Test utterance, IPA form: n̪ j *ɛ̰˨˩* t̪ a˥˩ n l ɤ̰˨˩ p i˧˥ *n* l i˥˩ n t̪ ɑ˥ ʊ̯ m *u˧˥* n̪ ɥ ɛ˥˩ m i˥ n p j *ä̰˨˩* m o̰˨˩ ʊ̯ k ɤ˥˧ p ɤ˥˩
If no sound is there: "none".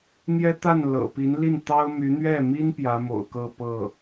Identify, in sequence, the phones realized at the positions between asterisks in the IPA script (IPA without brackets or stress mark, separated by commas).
ɛ˥, n, y˧˥, ä˧˥